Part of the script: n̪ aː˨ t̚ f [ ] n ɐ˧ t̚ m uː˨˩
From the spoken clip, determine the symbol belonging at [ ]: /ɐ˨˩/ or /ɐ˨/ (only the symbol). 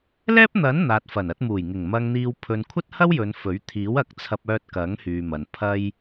ɐ˨˩